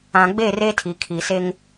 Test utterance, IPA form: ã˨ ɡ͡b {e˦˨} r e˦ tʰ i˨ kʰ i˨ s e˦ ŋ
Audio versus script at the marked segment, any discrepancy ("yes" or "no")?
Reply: no